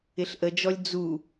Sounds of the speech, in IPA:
ɪ ɬ ʔ ə d͡ʒ ɔ lʲ d͡z u

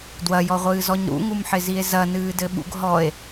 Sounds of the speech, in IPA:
d w ɐ j ɔ ʁʷ ɨː z ɔ ɲ ɾ ṵ ŋ u m ħ ɪ z i e̯ z ɐ n ɨː d ɘ ɓ ṵ ɡ ɦ ɔ e̯

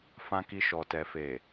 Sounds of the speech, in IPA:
f ã˨ k i˨ ʃ ɔ˨ t ɛ˨ f e˨

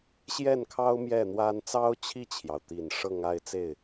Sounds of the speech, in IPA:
ɕ j ɛ˥˩ n kʰ ɑ˥ ʊ̯ m j ɛ˥˩ n̪ w a˥ n t͡s ɑ˥ ʊ̯ t͡ɕʰ i˥˩ t͡ɕʰ j ɑ˩ ʊ̯ t̪ i˨˩ n ʂ ɤ˥˧ ŋ a˥˧ ɪ̯ t͡s e˥˩ ɪ̯

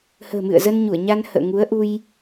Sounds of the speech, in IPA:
h ə̤ː˨˩ m ɨ̰˧˨ ə̯ z ə˧ n ɲ u˧˩ ə̯ ɲ a˧ n h ə̰ː˧˨ ŋ u˨˦ ə̯ ʔ u˧ j

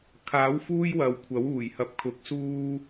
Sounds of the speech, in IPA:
kʰ aː˨˥ w f uː˥ j w ɐ˨ w kʷʰ ɐ˨˥ w uː˨˩ j h ɐ˨˥ p̚ kʰ ʊ˨˥ k̚ s uː˥

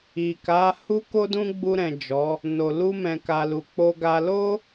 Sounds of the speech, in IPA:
i˨ k a˨˦ h u˦ k o˦ d ũ˦ ɡ͡b u˧ ɾ ɛ̃˨ d͡ʒ ɔ˨˦ | n o˨ l u˧ m ɛ̃˨ k a˨ l u˨ k͡p o˧ ɡ a˧ l o˦

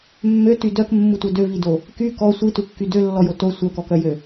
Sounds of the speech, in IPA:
mː ø t y d œ k mː u tʷ œ d ø v i d o | k y k ɔ sʷ i t u kː y d ø lː ɔ j o t o sʷ œ k ɔ k œ j ø

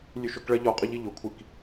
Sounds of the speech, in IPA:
lʲ ʉ ʃ ʊ k ɭ ɐ ʎ ɒ qʼ ə ʎ i ʎ ʊ kʷʰ i k

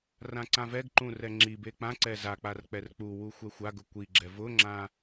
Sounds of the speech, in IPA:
r ã ǀ ã v ɛ ɡ ǃ ũ r ɛ ŋ͡ǁ i b e k͡p ã ǀ ɛ z a k͡p a r k͡p ɛ r k͡p u w u xʷ ɛ xʷ a ɡ ʊ kʷ i ɡ͡ǁ ɛ v ʊ ŋ͡ǁ ã

